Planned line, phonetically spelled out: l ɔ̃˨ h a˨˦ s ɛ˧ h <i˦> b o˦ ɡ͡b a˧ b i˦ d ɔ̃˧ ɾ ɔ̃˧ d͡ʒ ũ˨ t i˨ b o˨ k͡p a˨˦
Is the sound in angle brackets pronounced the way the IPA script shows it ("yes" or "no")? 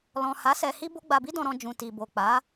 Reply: yes